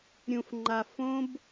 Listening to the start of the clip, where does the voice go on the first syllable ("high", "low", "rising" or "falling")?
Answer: low